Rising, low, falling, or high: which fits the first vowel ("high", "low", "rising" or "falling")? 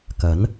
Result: rising